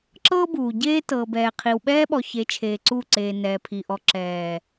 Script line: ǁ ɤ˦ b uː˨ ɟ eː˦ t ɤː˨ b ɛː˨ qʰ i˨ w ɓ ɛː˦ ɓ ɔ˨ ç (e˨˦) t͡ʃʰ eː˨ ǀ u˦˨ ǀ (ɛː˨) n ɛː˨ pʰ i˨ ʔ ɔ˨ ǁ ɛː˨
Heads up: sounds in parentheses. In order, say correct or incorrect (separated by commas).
correct, incorrect